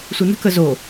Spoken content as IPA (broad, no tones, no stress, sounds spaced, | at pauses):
sʷ ɯ n ə̤ k ə z o